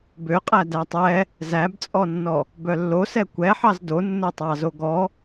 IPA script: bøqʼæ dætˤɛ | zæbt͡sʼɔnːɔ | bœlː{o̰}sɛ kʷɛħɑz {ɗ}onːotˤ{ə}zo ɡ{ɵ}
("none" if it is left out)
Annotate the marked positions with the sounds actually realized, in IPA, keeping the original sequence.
o, d, ɑ, ɔ

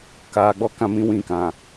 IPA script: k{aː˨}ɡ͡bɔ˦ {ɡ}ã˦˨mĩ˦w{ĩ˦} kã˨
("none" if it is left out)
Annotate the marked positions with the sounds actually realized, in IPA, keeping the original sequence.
aː˨, k, ĩ˦˨

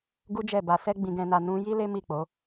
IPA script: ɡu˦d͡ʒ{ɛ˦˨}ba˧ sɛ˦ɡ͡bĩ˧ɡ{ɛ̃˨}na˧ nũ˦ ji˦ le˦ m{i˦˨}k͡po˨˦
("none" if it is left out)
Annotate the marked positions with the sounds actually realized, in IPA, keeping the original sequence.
ɛ˦˨, ɛ̃˧, i˦˨

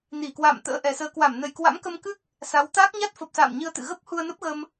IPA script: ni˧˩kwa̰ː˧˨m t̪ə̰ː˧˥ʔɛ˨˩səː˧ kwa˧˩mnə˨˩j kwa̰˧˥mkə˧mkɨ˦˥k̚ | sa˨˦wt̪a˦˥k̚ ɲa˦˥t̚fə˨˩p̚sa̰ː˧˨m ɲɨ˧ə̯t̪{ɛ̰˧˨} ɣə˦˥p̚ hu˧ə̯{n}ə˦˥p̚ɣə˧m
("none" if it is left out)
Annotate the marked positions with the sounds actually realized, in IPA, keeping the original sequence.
ɨ̰˧˨, n

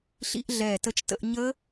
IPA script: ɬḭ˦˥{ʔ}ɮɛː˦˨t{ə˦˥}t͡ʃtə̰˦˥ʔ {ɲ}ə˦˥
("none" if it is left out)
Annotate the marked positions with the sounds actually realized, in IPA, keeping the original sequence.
ʔ, ə˦˥, ɲ

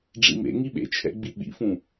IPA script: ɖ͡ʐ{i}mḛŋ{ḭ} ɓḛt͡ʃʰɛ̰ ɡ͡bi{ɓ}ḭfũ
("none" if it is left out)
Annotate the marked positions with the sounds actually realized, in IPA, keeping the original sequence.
ḭ, i, ɓ

